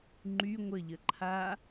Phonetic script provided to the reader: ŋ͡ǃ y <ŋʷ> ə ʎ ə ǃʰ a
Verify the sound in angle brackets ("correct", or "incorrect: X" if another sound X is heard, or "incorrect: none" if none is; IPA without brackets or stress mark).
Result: correct